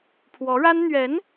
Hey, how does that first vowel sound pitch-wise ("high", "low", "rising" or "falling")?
rising